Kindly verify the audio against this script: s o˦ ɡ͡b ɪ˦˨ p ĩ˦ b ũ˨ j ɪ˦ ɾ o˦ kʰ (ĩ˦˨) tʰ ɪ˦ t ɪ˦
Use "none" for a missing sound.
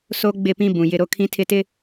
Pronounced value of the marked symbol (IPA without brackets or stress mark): ĩ˦